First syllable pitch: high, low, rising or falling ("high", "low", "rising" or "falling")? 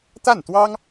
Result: falling